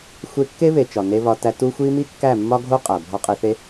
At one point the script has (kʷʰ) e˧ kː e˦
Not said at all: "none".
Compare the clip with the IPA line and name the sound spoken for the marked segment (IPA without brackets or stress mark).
xʷ